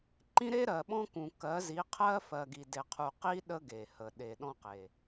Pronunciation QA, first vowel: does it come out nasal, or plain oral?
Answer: nasal